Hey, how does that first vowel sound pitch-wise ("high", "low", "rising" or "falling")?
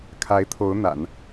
rising